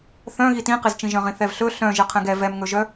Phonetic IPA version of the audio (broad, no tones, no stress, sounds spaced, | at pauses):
θ œ̃ ɣ i t ĩ q e z t͡ʃ ĩ ʒ œ̃ ʁ ĩ θ ɛ v ɬ ɵ ɬ œ̃ ʒ ɘ qʰ ɛ̃ ɡ ɛ v ɛ m ŋ ɵ ʒ œ